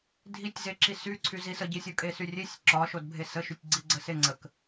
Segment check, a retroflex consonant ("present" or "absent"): absent